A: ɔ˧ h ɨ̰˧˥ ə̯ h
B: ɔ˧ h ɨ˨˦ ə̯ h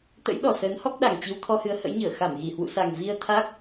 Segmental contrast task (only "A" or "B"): B